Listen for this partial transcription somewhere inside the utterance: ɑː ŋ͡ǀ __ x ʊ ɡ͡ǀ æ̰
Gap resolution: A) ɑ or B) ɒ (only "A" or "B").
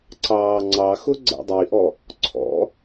A